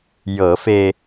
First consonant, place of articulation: palatal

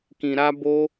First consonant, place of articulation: velar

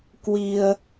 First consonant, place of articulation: velar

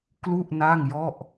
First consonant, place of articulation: velar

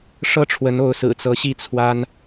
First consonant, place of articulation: retroflex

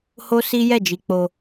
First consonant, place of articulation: glottal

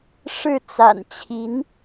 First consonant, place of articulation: retroflex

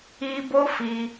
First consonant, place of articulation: labial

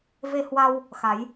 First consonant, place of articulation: labial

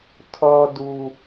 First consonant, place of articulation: alveolar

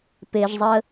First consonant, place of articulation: labial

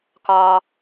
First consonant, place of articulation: velar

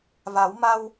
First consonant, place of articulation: labial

